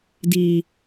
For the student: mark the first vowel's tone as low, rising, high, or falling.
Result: low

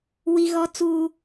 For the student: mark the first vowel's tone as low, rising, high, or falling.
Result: high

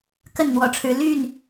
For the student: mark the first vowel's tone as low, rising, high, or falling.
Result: falling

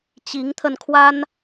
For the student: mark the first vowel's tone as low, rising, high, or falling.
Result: rising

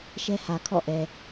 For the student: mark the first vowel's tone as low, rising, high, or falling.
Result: high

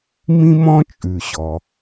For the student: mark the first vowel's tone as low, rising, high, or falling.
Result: high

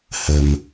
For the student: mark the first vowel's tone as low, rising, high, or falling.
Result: low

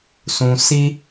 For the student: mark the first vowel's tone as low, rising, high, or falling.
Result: low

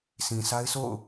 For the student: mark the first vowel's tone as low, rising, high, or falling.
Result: low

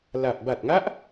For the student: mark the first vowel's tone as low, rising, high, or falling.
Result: low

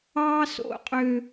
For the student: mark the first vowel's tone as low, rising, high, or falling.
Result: high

